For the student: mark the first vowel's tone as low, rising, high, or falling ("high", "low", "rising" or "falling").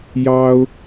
high